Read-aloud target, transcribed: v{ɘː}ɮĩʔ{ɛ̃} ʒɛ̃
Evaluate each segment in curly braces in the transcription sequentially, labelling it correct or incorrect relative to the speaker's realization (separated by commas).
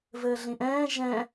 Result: correct, incorrect